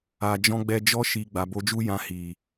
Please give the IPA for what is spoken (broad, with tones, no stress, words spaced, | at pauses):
a˨d͡ʒɔ̃˧ɡ͡bɛ˧ d͡ʒɔ˧ʃi˨ ɡ͡ba˨bo˧d͡ʒu˦jã˧ hi˨